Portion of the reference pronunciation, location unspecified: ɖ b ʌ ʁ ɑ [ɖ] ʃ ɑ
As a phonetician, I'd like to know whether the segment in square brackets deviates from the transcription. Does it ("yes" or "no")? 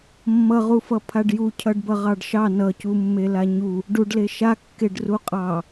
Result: no